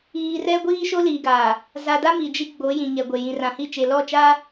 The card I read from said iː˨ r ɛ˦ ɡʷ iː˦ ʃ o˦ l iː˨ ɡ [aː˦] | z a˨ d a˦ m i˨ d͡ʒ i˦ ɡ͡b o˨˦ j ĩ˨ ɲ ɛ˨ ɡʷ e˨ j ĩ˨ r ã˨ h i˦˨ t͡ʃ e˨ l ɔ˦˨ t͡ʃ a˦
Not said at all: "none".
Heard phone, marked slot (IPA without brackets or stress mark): aː˨